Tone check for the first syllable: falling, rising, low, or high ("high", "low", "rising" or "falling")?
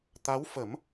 rising